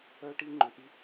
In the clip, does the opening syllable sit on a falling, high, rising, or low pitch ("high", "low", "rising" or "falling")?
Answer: high